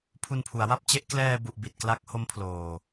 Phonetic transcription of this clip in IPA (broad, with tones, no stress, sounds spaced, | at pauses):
pʰ u˧ n pʰ u˩˦ a̯ w a˥˩ p̚ t͡ɕ e˦˥ ʔ k l ɛː˧ b u˨˩ ʔ b i˨˩ t̚ k l a˦˥ k̚ h o˦˥ m pʰ l oː˨˩